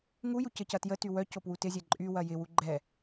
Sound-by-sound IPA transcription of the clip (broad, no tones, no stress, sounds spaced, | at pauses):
ŋ u j u c ə c ɐ t j ə t y w œ c o p w u t ɪ zʲ ɛ ǃʼ y w ɐ j ɪ w u ɡ͡ǃ ɛ